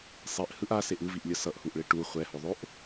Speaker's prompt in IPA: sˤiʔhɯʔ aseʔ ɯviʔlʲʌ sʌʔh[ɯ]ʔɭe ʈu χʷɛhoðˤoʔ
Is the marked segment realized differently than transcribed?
yes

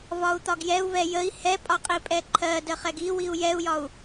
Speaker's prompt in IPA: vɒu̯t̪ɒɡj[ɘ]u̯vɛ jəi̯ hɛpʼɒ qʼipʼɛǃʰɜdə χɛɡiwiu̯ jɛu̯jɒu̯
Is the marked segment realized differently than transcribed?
yes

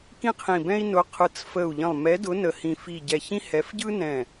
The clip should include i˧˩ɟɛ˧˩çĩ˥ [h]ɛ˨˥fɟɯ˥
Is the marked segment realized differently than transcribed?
no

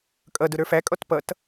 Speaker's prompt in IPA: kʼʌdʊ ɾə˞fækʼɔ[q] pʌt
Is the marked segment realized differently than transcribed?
yes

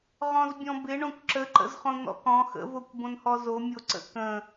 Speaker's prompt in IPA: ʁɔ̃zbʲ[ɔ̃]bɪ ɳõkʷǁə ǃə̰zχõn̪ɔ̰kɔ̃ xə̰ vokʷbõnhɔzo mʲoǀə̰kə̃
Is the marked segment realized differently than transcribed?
no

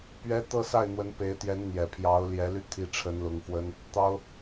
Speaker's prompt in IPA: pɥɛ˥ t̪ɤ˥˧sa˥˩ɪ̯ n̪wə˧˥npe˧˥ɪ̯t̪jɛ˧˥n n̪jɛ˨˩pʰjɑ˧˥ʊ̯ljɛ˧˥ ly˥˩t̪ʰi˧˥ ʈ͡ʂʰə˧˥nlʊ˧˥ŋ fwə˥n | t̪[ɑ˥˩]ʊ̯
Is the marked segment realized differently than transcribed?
yes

